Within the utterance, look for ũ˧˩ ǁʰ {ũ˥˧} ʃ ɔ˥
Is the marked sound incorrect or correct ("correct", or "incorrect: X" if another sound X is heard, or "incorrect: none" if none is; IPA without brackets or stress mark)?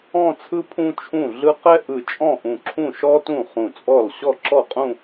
incorrect: ũ˥˩